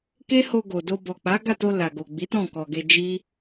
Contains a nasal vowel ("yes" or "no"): yes